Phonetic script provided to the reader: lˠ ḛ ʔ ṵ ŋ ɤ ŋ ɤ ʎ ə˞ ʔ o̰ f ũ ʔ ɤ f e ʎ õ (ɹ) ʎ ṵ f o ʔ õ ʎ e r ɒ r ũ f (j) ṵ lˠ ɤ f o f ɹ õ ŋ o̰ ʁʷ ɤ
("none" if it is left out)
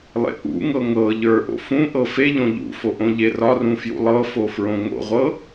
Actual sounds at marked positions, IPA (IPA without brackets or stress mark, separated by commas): none, j